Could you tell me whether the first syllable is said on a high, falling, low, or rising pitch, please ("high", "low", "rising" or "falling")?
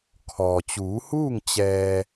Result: low